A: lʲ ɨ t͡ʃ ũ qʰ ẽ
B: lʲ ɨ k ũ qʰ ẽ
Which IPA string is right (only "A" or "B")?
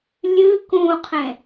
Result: B